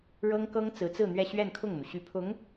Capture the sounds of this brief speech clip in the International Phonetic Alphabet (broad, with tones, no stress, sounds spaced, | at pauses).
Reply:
ɻ ɤ˥ ŋ k ɤ˥ ŋ t͡s ɹ̩˧˥ t͡s ɹ̩˥˧ n̪ ɥ ɛ˥˧ ɕ ɥ ɛ˥˧ n kʰ ʊ˥˩ ŋ n̪ u˩ ɕ y˧˥ pʰ ʊ˧˥ ŋ